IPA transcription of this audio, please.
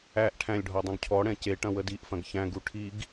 æʔ ʈʰæ̃lʲɖʱɔ dˤũɡcʰɔɽɛ̃ ceʈɐ̃ wədiʔfɐ̃ɡ çæ̃ɡu ʈʰiɡ

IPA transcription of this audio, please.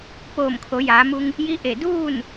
poː˧˩mkʰo˩˧jaː˩˧mu˧ŋ | ji˧˥ ʔe˧˩duː˥˨n

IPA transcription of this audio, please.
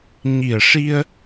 ɲi˨˩ə̯ʂi˧ə̯

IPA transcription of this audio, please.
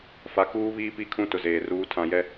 fa˨ kuː˦βiː˦pi˦˨kʰũ˦ tʊ˨zeː˨ruː˨˦ tʰã˨jɛ˦

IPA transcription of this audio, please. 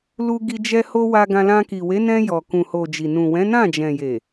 lu˧ɡi˧d͡ʒɛ˧ ho˧ wa˧ɡã˧lã˧ ki˨we˨˦nɛ̃˧ jɔ˨kũ˨ho˨ d͡ʒi˨ nũ˨wɛ̃˨˦nã˦˨ d͡ʒɛ̃˨je˨

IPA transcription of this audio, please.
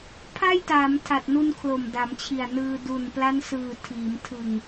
pʰa˥˩jtaː˩˦mtʰa˨˩t̚nu˧n kʰlo˨˩mda˩˦mt͡ɕʰi˨˩a̯nɯː˧ du˨˩n pla˦˥nsɯː˨˩ tʰiː˩˦m tʰɯ˨˩ŋ

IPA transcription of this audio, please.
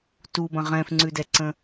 tubɐ̃ ʁɛ̃fŋ͡ǀʉdɛǀə̃

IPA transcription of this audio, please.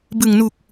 bɯ˨˩ŋnu˨˩k̚

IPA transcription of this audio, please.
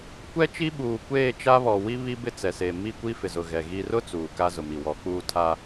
kʷɛ˦t͡ʃi˦ɓuː˨ kʷeː˦˨t͡ʃa˦βɔ˨ wi˦ βi˦bɪ˦t͡sɛ˨se˨ mi˦˨kʷi˦ fɪ˨zʊ˨ɣɛ˨ ɣi˦ rʊ˦ t͡suː˨ka˦ zʊ˨mi˨wɔ˨˦ k͡puː˦tʰa˦

